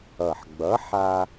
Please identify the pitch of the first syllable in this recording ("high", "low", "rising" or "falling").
low